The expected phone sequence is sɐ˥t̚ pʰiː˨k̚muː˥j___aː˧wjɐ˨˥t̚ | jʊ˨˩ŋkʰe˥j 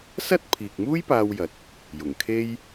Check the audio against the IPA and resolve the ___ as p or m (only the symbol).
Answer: p